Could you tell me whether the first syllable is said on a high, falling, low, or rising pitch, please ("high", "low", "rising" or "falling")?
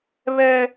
high